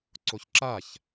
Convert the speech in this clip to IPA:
ǀ o ç ǁ a ç

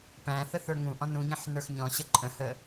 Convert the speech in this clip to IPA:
p æ̃ θ ə θ ə˞ ŋ ũ ʔ ɔ̃ n ũ ɲ ə̃ ħ n ə˞ x ɲ ɔ̃ ɕ ə ǃʼ ə̃ h ə

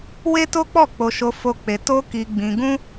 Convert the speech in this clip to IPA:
w e˦ t o˦ k͡p ɔ˦˨ k͡p o˧ ʃ o˧ f o˦ k͡p e˧ t o˦ k i˧ ɡ͡b ĩ˧ ɡ ũ˦

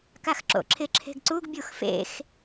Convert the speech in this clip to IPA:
k a x ǁ o̰ ǁʰ ɪ ǁʰ e̤ ɡ ǀ u ɡ bʲ u x f ḛ x

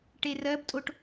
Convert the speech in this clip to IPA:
ʈ e r ɜ b tʼ o ʈ

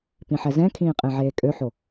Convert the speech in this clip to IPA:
p ĩ ħ ɛ z ɛ̃ kʰ ĩː qʼ ẽ ʕ eː kʼ ø ħ o

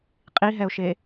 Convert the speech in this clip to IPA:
qʼ i ɦ ɛ ʊ̯ ʃ e

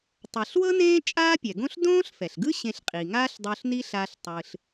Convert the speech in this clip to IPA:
tˤ ɤ˩ ɬ w ɤ˥ n ẽː˥ t͡ʃʼ aː˥ pʲ ɛ˩ ɡ õ˥ ɬ d õː˥ ɬ f ɛ˩ ɬ ɡ ɯ˥ ɕ ẽ˧ ɬ qʼ i˩ ŋ aː˥ ɬ dˤ o˧ ɬ n i˥ ɬ a˧ ɬ tˤ ɯ˩ ɬ

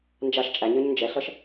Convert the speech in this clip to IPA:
n d͡ʒ a ʃ t͡ʃʼ æ ɲ ə˞ ɲ n d͡ʒ ɛ ɬ ʌ ʃ

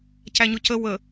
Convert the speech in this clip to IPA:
c æ ɲ ʊ c ə w ə

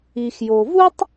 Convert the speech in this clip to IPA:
i˩ x j o˩ v u˥ tˤ

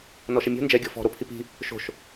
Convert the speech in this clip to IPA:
n ɔ ʃ ɛ mʲ o̤ n d͡ʒ ɛ ɡʲ ɔ̤ f ɔ̤ ɾ o pʰ i p i̤ | ʃ o̤ ʃ

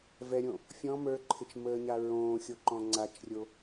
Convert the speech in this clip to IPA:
v ɛ ɾʲ õ | fʲ ɔ̃ m ə˞ ǃʰ ɪ t͡ʃ m əː ɲ a ɹ õː xʲ o ǃ ɔ̃ ŋ͡ǀ a t͡ʃ rʲ o

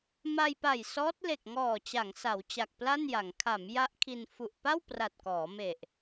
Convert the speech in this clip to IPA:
m a˧ j p a˨˩ j s ɔː˦˥ t̚ l e˨˩ k̚ ŋ ɔː˨˩ t͡ɕ a˩˦ ŋ s a˩˦ w t͡ɕ a˨˩ k̚ p l a˥˩ n j a˩˦ ŋ kʰ a˩˦ m j a˦˥ ʔ kʰ i˧ n f u˨˩ ʔ p a˥˩ w p r a˨˩ t̚ k ɔː˩˦ m e˨˩ ʔ

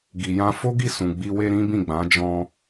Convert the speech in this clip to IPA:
ɡ i˨ j ã˧ f o˦ ɡ i˦˨ s ũ˨ ɡ͡b i˧ w e˧ ɾ ĩ˦ b ĩ˦˨ ɡ͡b ã˨˦ d͡ʒ ɔ̃˧

